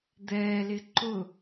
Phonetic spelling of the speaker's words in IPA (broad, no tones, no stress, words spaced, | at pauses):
d̪ɛːlɪ ǃʊ